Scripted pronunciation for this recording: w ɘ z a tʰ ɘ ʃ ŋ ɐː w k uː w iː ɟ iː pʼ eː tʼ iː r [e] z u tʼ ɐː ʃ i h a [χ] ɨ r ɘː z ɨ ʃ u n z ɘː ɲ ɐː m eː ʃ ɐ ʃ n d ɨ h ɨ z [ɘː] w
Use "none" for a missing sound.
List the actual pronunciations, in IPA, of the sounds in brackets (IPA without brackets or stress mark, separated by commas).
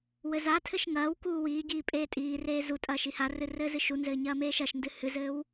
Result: eː, r, ɘː